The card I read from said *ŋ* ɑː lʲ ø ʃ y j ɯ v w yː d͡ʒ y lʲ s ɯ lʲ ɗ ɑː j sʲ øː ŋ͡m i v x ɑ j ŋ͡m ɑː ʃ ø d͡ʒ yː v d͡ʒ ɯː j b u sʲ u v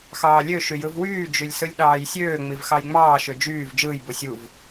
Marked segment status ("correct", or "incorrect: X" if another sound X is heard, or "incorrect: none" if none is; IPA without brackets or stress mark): incorrect: x